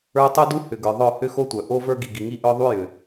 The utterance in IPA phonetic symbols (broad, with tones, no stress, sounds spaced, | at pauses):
ə˞˦ tˤ u˦ d u˦ h ʏ˨ ɡ ə˞˨ ðˤ œ˦˨ h ʏ˦ x o˦ tʷ œ˨ ʔ o˦ v ə˞˦ ɡ i˨ ɡ i˨ ŋ i˦ ʔ œ˦ ðˤ u˦ j ʏ˨